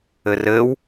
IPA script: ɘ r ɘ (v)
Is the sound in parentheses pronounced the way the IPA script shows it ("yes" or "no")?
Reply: no